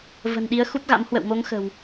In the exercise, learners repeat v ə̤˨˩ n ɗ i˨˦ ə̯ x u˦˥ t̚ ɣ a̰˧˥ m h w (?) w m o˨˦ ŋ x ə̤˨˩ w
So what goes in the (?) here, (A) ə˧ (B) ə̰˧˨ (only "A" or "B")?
B